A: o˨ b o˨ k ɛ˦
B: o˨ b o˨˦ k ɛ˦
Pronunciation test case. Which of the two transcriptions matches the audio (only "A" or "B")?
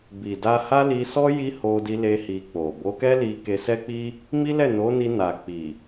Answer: B